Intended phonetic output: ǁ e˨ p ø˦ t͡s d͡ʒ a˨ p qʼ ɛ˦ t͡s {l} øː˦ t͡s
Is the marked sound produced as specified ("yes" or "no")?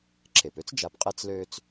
yes